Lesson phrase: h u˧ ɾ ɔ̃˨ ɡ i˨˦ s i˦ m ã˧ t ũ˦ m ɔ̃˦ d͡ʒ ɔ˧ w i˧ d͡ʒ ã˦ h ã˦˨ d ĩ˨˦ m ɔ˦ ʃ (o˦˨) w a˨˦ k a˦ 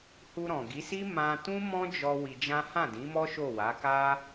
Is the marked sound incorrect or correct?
correct